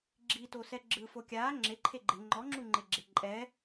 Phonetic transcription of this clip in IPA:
ɡ͡ǁ i t o s ɛ ɡ͡ǁ ɯ f o kʲ aː ŋ͡ǁ e ǃʰ e ɡ͡ǃ e ŋ͡ǃ ɔ ŋ͡ǁ u ŋ͡ǃ e ɡ͡ǁ e ǃʼ ɛ

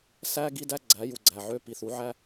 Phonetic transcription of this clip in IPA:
s æ˦ ɡ i˦ d æ˦ ɡ͡ǀ æ˨˦ j u˨ ɡ͡ǀ æ˨ ʕ ø˧ p i˨ θ u˨˦ ʕ æ˦

